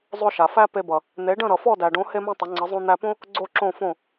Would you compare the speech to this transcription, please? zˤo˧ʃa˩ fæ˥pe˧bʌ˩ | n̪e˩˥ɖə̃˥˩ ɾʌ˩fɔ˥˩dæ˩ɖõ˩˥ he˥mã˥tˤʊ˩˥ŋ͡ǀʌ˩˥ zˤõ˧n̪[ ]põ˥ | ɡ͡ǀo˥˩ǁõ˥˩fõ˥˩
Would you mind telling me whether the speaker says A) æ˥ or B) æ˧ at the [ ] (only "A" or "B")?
B